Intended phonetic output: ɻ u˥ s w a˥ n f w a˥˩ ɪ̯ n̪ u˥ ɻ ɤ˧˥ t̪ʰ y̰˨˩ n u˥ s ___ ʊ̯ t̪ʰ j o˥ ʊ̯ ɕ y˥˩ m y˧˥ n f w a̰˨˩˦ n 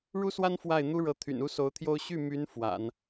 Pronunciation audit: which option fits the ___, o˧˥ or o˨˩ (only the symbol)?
o˧˥